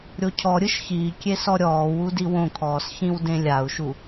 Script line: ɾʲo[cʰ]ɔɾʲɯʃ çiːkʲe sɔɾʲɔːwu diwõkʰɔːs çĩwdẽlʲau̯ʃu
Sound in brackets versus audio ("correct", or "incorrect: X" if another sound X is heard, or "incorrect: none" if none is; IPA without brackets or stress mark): correct